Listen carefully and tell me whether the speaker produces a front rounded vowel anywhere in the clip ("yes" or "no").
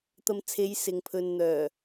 yes